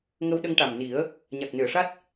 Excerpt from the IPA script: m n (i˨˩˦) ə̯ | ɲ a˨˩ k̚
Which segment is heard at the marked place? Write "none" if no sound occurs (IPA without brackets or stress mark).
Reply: i˨˩˦